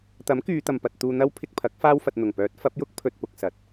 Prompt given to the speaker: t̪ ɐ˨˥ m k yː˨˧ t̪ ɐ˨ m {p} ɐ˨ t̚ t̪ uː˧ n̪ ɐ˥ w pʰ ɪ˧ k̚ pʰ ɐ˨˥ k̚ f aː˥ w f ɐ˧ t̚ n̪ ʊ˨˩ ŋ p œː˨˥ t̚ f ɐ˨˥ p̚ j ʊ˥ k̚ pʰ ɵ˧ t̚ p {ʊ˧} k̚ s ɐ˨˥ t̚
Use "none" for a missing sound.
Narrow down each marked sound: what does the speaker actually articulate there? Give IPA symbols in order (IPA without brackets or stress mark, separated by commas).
p, ʊ˧